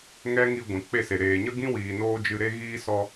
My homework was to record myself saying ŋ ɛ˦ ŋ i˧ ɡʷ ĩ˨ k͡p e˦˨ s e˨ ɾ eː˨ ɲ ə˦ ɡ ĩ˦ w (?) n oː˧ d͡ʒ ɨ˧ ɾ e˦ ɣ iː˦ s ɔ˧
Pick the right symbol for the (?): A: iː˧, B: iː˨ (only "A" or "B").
B